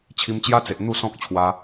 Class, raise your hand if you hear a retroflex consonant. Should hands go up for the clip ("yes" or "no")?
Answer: no